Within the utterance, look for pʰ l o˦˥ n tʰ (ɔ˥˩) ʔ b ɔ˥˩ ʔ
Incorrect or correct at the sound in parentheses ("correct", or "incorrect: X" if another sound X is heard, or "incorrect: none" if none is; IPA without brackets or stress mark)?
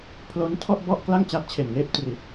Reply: correct